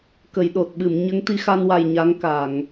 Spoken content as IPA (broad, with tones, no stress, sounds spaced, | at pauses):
k ə˨˩˨ j ɗ o˨˩ t̚ ɓ ɨ˨˩˨ m ɲ ə˧˥ ŋ t̪ i˧ x a˧ n w a˨˩ j ɲ a˧˥ ŋ k a˨˩˨ ŋ